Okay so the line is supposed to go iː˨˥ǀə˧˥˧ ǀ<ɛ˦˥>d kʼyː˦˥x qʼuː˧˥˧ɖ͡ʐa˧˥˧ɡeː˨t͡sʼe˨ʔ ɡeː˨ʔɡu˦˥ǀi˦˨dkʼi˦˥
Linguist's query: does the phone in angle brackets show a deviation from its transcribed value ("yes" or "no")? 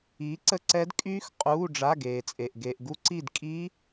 no